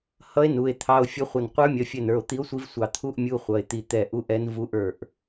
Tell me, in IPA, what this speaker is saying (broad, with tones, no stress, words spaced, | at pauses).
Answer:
hʌ˧˥e̯ nu˩˧˩e̯t̪ʰɑ˧˥˧o̯ fʲʌ˧˥χʷə˧˩n qʷə˞˧˥mʲʌ˩˧˩fʲɛ˧˩nə˞˩˧˩o̯ t̪i˧˥o̯sʷi˧˥vsʷɑ˧˩ t̪ʰu˧˥˧ʔ mʲu˧˥˧χʷʌ˩˧˩e̯t̪i˧˩ t̪ɛ˧˩ ʔu˧˥˧ʔɛ˧˥n vu˧˥ʔ ə˞˧˩ʔ